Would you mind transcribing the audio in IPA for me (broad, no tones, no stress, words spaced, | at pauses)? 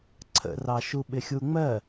ǀʰə̰rɑʃu ɓɪxʲuŋ͡mɜ